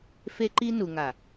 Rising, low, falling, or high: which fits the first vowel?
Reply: high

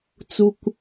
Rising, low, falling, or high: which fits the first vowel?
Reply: low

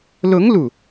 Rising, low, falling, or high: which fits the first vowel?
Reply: rising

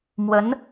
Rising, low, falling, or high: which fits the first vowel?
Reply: rising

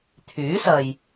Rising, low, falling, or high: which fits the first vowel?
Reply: rising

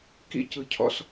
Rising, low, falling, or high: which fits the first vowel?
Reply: high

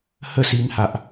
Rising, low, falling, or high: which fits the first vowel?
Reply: falling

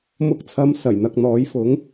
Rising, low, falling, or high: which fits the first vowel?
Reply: rising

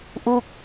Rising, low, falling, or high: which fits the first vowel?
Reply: falling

